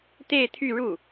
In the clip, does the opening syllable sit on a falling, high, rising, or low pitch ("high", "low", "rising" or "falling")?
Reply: falling